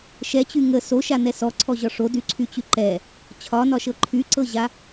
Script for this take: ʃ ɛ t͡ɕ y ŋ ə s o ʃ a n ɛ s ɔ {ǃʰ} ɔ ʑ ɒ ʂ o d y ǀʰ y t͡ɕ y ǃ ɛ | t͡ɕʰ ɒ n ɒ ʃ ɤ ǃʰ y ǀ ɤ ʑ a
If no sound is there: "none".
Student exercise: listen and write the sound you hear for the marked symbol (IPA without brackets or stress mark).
ǀʰ